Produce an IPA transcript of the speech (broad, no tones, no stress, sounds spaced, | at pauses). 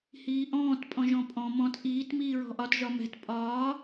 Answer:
h iː ʔ ɔ̃ː t pʼ ɔ̃ ʒ ɔ̃ pʼ ɔ̃ m ɔ̃ t ʔ iː t m iː ɹ ɔ̤ ʔ ɒ t ʒ ɒ m ɛ̤ t pʼ ɒː